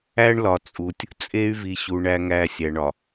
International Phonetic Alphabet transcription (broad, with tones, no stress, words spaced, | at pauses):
æ˦ɳlɒ˨t͡sʼu˨tʲ | t͡sʼe˦y̯vi˨ɕu˨ ɳæ˨ŋæ˨ sʲæ˨ɳɒ˨